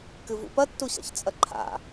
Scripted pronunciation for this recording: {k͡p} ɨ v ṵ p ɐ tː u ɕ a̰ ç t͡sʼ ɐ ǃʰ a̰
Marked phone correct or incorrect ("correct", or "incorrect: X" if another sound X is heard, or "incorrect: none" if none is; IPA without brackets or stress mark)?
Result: incorrect: k